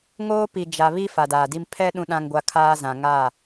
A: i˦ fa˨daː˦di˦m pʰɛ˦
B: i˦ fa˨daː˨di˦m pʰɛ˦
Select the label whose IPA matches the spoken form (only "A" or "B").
B